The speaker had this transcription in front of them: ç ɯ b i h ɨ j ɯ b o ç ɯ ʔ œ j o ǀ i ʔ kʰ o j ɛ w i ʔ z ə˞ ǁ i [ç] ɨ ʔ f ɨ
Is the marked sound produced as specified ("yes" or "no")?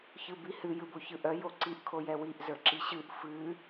no